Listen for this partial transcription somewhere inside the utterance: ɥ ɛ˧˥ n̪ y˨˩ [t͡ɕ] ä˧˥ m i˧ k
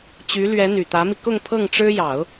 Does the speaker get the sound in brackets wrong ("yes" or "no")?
yes